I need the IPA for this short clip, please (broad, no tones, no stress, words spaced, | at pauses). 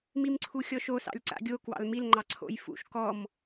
mimǀʰuxʲɔʃo sɑ̰lʲǀa̰ɡʲo kwɑ̰lmil ŋ͡ǃɑǀʰo̰j fṵʃ kɔm